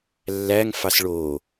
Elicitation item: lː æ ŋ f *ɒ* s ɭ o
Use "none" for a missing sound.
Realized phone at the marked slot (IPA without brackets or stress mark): ɑ